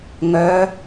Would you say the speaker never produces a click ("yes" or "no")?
yes